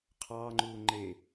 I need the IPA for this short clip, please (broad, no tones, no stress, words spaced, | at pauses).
qʰɑːŋ͡ǃuː ŋ͡ǃe